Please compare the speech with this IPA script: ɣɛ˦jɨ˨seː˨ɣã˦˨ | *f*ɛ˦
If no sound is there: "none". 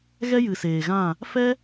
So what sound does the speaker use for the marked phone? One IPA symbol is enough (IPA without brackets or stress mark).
f